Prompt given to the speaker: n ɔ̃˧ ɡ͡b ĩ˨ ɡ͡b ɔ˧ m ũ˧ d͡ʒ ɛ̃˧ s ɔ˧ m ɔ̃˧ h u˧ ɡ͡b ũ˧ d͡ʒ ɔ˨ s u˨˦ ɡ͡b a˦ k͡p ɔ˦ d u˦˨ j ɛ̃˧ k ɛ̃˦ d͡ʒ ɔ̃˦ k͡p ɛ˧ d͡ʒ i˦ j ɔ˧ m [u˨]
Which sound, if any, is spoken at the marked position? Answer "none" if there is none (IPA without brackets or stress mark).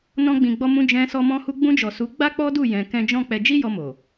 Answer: o˨